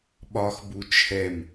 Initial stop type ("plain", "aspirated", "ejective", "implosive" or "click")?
implosive